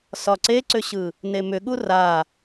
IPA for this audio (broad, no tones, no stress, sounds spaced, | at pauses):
s ɒ ǀ e ǀ ʏ ɕ ɯ | n e m ʏ ɠ u r a